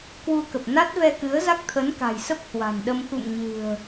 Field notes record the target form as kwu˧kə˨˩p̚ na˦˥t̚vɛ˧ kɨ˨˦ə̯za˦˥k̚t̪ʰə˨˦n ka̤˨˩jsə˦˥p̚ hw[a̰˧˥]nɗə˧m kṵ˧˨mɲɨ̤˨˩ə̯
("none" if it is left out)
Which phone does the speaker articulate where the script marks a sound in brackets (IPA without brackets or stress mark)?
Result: a̤˨˩